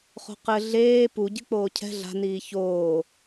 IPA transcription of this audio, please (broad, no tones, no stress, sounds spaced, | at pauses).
χ o̤ q ɘ ɮ eː p u ɟ ɨ k͡p oː cʰ ɛ̤ ɮ a̤ n iː ç oː